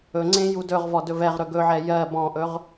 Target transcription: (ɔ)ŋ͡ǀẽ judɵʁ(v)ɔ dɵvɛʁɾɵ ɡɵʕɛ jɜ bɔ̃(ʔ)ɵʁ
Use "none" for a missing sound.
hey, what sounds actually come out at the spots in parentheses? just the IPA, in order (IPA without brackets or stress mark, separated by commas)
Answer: ɵ, v, ʔ